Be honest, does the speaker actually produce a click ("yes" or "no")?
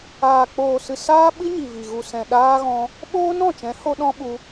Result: no